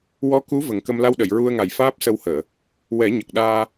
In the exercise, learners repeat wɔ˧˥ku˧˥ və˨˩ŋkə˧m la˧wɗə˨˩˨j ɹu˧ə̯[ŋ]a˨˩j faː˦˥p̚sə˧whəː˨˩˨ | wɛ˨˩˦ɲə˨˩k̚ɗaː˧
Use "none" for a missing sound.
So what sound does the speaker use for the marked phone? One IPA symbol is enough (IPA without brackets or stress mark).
ŋ